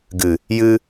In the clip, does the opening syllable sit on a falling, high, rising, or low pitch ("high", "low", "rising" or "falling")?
low